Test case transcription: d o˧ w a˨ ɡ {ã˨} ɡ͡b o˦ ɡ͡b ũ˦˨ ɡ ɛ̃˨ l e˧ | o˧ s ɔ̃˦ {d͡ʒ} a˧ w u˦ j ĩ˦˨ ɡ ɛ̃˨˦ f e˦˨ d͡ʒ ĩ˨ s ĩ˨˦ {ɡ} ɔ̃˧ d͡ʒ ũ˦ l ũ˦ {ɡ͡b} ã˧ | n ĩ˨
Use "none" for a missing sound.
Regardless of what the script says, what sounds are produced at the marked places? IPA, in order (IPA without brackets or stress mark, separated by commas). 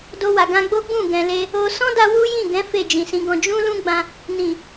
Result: ã˧, d, ɡ, ɡ͡b